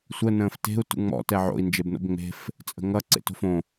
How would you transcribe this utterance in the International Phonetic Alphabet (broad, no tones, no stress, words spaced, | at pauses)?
sʷə nə̃ːfte̤u̯ tṵŋ͡mɔ̰ tɛʕo̰i̯ nd͡ʒebno̰bŋ͡me̤f | t͡sʼə̤ŋʌ ǀḛto̤fõ